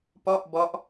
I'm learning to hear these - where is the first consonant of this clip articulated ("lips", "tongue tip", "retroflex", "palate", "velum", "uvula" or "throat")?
lips